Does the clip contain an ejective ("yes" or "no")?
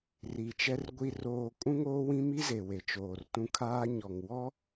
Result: yes